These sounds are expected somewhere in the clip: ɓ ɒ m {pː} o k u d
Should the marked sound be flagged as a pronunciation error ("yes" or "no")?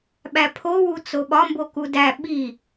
yes